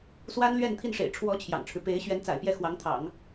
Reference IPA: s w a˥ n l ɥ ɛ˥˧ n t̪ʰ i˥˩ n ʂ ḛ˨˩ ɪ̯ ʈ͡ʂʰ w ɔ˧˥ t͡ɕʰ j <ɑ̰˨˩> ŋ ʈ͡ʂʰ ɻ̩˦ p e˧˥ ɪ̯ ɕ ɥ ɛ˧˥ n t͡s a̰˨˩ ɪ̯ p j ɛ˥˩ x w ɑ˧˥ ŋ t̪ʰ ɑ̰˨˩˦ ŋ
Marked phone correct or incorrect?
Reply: correct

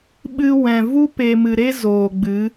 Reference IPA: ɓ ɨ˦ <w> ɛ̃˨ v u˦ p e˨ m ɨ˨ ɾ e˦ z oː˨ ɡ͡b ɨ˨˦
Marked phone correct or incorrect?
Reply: correct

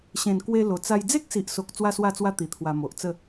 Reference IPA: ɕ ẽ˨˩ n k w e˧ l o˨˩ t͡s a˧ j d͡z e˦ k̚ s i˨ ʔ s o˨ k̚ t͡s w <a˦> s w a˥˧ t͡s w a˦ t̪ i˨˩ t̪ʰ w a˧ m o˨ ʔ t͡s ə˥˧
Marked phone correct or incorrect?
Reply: incorrect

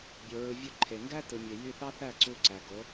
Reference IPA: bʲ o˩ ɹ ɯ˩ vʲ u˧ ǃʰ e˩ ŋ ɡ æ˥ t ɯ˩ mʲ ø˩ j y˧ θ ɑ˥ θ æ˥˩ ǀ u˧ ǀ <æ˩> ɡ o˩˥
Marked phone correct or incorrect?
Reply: correct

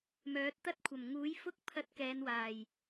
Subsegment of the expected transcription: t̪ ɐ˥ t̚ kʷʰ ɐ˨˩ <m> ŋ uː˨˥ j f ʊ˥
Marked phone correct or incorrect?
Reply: correct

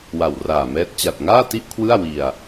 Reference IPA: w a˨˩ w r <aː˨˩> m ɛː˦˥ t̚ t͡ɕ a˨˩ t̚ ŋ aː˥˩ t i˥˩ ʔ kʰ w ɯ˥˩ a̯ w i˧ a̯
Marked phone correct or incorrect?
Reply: correct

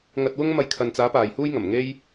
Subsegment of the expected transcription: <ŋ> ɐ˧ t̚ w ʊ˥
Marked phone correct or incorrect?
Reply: correct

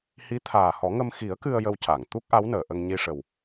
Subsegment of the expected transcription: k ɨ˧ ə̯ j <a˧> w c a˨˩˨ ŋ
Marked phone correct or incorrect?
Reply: incorrect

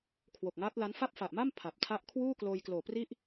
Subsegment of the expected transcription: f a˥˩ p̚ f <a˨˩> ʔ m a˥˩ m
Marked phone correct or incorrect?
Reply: correct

